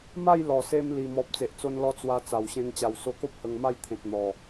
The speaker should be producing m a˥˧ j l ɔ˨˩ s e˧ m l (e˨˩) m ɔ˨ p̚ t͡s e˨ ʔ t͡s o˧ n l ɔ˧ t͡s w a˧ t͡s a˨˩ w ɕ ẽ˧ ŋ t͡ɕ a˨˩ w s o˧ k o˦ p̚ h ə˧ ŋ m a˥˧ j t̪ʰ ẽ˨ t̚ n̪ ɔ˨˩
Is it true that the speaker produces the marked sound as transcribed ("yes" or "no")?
no